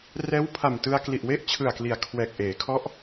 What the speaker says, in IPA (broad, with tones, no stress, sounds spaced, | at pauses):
r ɛː˦˥ w pʰ a˨˩ m t ɯ˧ a̯ k l i˨˩ ʔ w e˥˩ ʔ t͡ɕʰ ɯ˨˩ a̯ k l i˩˦ a̯ kʰ w ɛː˨˩ k̚ ʔ eː˩˦ kʰ ɔ˦˥ ʔ